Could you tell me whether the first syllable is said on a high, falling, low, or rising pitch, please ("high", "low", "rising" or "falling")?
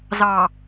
low